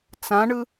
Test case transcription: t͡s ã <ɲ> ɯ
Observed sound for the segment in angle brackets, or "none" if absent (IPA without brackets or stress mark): ɳ